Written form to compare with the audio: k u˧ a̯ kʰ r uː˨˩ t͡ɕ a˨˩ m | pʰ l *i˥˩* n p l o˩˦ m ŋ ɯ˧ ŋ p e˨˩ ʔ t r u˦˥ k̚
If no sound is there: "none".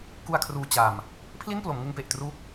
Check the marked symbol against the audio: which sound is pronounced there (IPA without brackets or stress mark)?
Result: i˥˩